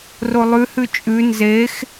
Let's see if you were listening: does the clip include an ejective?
yes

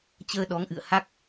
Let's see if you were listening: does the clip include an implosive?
yes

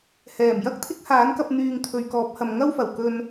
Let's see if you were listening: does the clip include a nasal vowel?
no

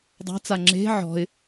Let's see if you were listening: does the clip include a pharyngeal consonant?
yes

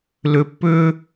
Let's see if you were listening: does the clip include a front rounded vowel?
yes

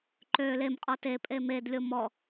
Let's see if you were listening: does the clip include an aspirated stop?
no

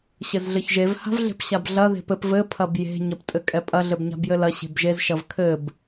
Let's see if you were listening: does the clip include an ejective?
yes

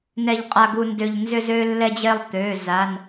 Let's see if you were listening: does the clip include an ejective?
yes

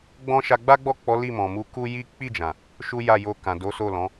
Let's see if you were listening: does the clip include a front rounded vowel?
no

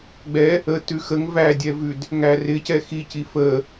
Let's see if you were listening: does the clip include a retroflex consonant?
no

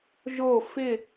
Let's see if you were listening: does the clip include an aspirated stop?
no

